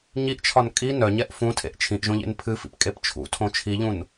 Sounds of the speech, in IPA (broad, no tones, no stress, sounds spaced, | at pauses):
ɲ i ʔ t͡ʃʰ ɒ n kʼ i n œ ɲ ɛ ʔ f ũ tʰ ḛ ʔ t͡ʃʰ ĩ ʔ ʒ õ ʎ ḛ n pʰ ɨ f ḭ p kʼ e p t͡ʃʰ ṵ tʰ õ t͡ʃʰ i ʎ ũ n